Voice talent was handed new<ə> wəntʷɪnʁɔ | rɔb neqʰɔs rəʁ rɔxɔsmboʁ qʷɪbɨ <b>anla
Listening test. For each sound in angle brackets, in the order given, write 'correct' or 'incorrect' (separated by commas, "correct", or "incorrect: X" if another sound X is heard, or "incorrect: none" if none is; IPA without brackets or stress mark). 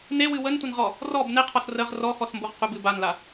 incorrect: ɨ, correct